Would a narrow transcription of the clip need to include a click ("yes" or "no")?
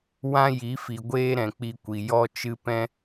no